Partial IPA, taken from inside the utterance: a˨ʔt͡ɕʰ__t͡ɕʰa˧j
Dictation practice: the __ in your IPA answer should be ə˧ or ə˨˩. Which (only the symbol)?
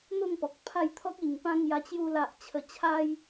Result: ə˨˩